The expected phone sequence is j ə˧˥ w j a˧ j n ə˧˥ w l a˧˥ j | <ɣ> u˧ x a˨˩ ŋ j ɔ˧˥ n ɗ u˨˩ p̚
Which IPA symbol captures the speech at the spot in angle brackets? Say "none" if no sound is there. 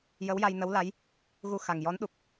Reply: ɣ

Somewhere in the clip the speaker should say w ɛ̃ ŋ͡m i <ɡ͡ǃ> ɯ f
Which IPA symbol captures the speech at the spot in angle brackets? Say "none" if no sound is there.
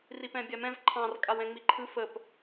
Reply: ǃʰ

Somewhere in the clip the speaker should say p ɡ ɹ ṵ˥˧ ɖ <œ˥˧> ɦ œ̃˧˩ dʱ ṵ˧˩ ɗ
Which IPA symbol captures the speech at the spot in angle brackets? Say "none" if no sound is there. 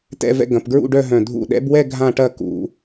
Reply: œ˥˧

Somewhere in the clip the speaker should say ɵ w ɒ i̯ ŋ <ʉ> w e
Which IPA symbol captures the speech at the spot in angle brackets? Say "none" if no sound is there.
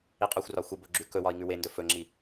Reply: ʉ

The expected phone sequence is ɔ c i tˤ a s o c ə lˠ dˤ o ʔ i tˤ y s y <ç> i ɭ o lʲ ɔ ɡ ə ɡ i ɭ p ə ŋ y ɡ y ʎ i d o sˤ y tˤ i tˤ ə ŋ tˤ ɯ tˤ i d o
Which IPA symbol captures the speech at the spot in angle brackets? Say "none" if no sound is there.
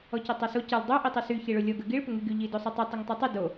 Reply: ç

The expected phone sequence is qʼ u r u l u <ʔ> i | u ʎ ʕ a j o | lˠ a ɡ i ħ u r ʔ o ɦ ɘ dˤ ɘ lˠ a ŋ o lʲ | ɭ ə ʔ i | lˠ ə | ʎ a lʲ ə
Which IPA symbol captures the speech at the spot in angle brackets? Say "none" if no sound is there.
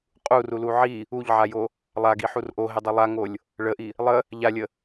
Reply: ʕ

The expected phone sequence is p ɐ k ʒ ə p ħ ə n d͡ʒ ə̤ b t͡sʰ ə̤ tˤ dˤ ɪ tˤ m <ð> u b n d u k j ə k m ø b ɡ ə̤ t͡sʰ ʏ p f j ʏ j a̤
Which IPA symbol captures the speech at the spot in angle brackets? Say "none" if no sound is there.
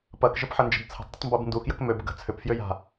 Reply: b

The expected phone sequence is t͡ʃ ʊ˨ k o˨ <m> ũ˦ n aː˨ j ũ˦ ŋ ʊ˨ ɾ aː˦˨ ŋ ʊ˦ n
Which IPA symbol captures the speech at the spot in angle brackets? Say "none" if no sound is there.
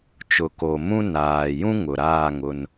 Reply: m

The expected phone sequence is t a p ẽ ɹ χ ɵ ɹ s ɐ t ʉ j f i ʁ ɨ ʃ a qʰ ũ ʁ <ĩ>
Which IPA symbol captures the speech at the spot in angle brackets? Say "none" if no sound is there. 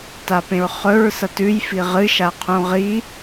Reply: i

